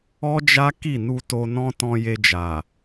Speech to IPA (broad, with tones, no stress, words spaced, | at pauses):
ɔ˦d͡ʒa˦ ki˦˨nu˧to˧ nɔ̃˦tɔ̃˧ je˧d͡ʒa˨